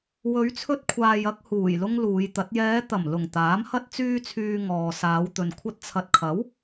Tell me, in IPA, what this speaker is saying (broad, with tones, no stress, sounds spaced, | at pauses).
w ɵ˨˧ ɥ t͡sʰ ɵ˧ t̚ kʷʰ aː˨ j ɐ˧ k̚ h uː˨˩ j l ʊ˥ ŋ l uː˨˧ j t̪ ɐ˨˥ t̚ j ɛː˨˧ t̪ ɐ˨˩ m l ʊ˨˩ ŋ t̪ aː˨˥ m h ɐ˥ t̚ t͡s yː˧ t͡sʰ yː˨ ŋ ɔː˨ s aː˨˧ w t̪ ɵ˨ n kʷʰ ɐ˧ t̚ t͡sʰ ɐ˨ t̚ kʰ ɐ˨˥ w